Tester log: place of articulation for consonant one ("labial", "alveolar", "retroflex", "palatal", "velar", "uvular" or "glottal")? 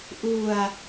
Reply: glottal